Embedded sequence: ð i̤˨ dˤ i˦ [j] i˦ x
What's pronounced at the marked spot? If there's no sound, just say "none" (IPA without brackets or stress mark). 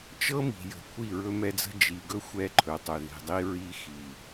ɹ